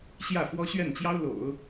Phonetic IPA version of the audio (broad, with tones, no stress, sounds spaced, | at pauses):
ɕ j ä˥˩ f w ɔ˥ ɕ ɥ ɛ˥˩ n t͡ɕ j ɑ˥ ʊ̯ l o̰˨˩˦ ʊ̯